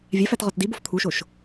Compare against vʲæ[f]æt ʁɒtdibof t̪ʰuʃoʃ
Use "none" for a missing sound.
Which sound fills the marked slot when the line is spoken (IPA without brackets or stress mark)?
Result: f